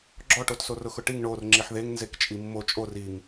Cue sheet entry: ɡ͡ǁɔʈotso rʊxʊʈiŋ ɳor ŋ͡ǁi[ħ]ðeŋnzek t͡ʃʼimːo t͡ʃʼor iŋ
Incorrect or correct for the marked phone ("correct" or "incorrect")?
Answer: correct